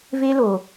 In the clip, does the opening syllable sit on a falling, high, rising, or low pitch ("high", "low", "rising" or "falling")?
high